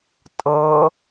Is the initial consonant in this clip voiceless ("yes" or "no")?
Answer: yes